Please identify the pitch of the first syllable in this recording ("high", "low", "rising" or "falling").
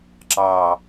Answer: low